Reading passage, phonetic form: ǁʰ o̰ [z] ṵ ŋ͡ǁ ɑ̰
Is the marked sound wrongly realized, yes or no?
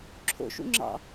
yes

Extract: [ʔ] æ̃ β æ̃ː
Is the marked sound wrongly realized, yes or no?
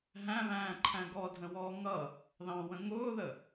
yes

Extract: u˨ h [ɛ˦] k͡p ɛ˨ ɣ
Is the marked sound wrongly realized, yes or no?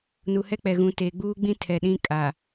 no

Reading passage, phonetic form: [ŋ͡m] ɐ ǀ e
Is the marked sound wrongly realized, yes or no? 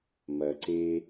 yes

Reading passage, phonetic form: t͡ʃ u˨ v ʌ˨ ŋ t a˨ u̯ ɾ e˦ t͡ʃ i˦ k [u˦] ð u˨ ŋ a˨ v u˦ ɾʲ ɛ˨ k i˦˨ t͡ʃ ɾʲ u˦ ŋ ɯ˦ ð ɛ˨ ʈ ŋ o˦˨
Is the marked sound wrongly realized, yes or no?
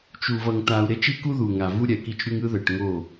no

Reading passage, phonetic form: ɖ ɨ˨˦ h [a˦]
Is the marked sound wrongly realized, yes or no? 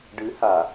yes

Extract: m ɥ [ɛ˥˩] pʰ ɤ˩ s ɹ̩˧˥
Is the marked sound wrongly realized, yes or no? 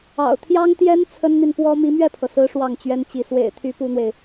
no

